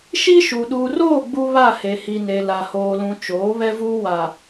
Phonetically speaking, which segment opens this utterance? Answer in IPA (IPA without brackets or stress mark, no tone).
ʃ